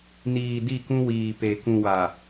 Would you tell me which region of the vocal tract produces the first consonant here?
tongue tip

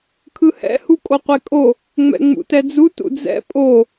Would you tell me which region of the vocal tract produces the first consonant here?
velum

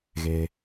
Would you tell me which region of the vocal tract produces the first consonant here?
velum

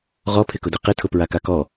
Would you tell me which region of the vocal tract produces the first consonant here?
uvula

